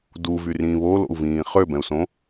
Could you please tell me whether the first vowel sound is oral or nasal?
oral